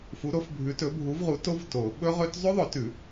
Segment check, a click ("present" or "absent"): absent